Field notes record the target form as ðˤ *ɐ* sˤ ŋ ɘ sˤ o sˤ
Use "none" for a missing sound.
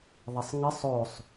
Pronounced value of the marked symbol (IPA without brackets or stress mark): ɐ